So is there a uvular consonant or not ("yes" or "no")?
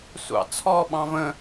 no